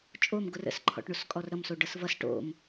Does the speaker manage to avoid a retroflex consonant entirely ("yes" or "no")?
no